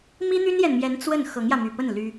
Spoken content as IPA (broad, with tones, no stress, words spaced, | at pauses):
mi˥n̪y˥njɛ˨nmjɛ˧˥n t͡swə˥˩n xɤ˧˥ŋjä˧my˨˩pə˥˩n ly˥